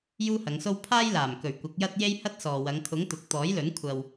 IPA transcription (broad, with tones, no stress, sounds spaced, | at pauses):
j uː˥ h ɐ˨˧ ŋ s o˥ w pʰ aː˥ j l aː˨˩ m k ɵ˨˩ ɥ kʷ ɐ˨˥ k̚ j ɐ˥ t̚ j e˥ j h ɐ˥ t̚ s ɔː˨ w ɐ˨˧ ŋ kʰ ʊ˨˥ ŋ t̪ ʊ˨ k̚ t̪ ɔː˨˥ j l ɵ˨˥ n kʷʰ ɐ˨ w